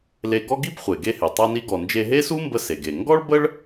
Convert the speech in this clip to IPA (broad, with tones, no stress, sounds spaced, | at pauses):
l e˧ ɡ ɔ˥ ɡ i˥ b χʷ e˩ ɡ e˧ h e˩ tˤ a˧ n i˧ ɡ ɔ˩ n d͡ʒ e˧ ɦ e˥ s u˥ m b ə˧ s e˩ ɡ e˩ ŋ ɡ ɔ˥ ɭ b ə˥ ɭ